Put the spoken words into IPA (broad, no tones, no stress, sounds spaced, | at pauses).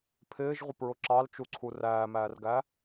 pʰ ɪː ʒ ʁʷ ɪ p ɹ ʊ ǁ ɑ l t͡ʃ u ǀʰ u r æː m æː r ɡ æ